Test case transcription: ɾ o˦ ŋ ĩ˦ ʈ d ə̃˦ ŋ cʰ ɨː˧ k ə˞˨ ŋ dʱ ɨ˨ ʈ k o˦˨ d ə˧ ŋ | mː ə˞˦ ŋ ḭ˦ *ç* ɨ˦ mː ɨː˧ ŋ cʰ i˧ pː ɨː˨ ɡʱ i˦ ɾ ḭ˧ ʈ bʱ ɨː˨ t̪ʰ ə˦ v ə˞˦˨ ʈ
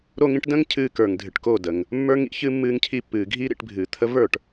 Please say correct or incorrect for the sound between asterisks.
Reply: correct